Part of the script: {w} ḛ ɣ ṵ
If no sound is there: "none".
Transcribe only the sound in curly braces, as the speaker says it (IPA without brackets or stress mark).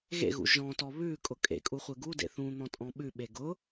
ɣ